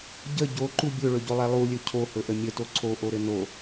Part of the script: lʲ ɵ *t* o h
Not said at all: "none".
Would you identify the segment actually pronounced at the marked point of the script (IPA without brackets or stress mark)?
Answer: cʰ